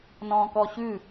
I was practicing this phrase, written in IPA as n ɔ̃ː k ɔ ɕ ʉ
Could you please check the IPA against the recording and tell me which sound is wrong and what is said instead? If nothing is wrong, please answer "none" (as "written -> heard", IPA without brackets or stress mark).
none